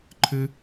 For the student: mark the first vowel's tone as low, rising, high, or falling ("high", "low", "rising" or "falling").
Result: high